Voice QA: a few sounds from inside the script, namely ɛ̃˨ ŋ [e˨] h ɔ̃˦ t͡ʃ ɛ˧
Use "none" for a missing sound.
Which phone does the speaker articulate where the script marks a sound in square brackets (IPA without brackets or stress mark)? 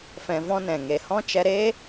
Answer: e˨